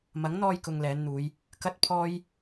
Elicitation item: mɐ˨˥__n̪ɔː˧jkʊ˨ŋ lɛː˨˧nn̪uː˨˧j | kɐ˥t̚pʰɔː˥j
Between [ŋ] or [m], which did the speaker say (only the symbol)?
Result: ŋ